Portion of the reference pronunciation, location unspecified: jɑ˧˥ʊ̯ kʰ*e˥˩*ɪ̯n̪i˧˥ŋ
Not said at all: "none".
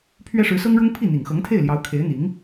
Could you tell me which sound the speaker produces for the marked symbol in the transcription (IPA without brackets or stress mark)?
e˧˥